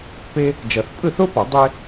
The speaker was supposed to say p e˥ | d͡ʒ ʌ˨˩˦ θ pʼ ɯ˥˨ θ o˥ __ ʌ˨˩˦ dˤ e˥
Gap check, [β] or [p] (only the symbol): p